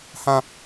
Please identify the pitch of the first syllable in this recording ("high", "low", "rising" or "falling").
high